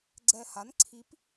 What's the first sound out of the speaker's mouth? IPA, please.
ɡ͡ǀ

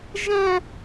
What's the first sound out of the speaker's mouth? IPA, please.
ʒ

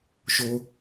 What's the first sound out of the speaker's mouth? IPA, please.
ʃ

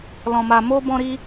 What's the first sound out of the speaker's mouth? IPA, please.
l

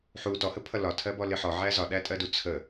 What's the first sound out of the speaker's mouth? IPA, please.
ħ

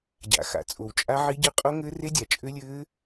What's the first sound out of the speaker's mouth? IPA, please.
ɟ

